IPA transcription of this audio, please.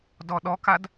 d ɔ ɗ ɔ k a d

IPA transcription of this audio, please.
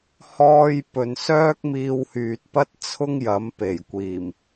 h ɔː˧ j p ɵ˨ n s œː˥ k̚ m iː˧ w h yː˨ t̚ p ɐ˥ t̚ t͡sʰ ʊ˥ ŋ j ɐ˨˥ m p e˨˩ j kʷ iː˨˩ m

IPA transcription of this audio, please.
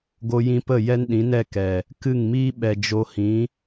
ɡ o˧ j ĩ˧ p ə˦˨ j ɛ˦ n ɗ ĩ˨˦ n ɛ˦˨ k ɛ˨ | k ɨ˦˨ ŋ m iː˦ ɓ ɛ˨ d͡ʒ o˧ h ĩ˨˦

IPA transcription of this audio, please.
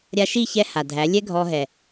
ɾʲ a˧ ʃ i˦˨ ç ɛ˦ h a˨ dʱ æ˨˦ lʲ ɛ˦ ɡʱ ɔ˧ ɦ ɛ˨

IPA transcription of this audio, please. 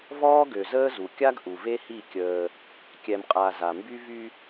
v ɔː˦ ɡ ø˨ z əː˦ z u˨ kʲ a˦ ɡ ʔ u˨ v e˦ h i˦˨ kʲ əː˦ | kʲ ɛ˨ m qʼ a˨ z a˨ m b y˦ v y˦

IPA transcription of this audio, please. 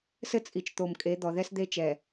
s ɘ˦ t͡sʼ i˨ t͡ʃ t̪ o˨ m kʼ e˨˦ d̪ ɔ˨ ð ɛ˦ s d̪ e˦ t͡ʃ ɛ˨

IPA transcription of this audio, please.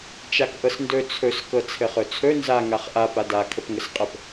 t͡ʃ a k ʔ ɤ s n d ɵ t͡sʰ ɵ s k ɤ t͡sʰ ɘ χ ɵ t͡sʰ ɵ n z a ŋ a χ ʔ a p a d a kʰ ə p ŋ ə s qʼ ə p

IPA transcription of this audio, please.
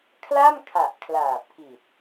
kʰ l a˥˩ m kʰ a˨˩ ʔ kʰ l aː˨˩ p̚ k i˨˩ t̚

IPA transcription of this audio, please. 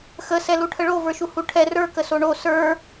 x ə s ɛ l u ʈʰ ə ɭ o v ə˞ ʃ u h u ʈʰ ɛ r ə˞ k ə s o ɳ o s ə˞

